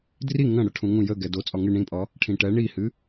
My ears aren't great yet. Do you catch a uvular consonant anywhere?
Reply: no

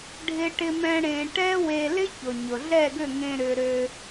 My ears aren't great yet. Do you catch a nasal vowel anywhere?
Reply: yes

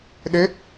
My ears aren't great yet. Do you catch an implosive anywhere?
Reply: yes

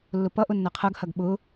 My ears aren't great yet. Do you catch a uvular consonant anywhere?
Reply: yes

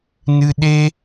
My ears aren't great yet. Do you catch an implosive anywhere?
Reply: yes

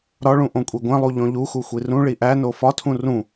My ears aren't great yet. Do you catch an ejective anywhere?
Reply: yes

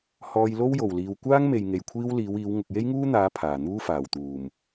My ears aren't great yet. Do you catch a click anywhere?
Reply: no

